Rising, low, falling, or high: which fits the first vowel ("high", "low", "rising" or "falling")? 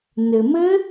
low